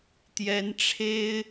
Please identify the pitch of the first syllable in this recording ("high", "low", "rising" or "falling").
rising